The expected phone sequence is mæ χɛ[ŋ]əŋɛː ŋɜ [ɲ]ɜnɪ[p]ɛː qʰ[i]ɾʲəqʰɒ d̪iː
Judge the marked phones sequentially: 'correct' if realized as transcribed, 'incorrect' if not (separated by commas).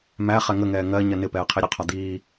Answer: correct, correct, correct, correct